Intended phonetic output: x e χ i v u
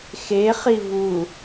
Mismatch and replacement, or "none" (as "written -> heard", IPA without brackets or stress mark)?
none